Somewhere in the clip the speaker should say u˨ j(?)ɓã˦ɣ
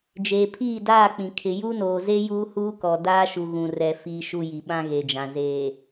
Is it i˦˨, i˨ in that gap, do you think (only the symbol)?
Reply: i˨